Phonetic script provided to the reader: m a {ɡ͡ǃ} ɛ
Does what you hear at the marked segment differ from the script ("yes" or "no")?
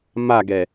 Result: yes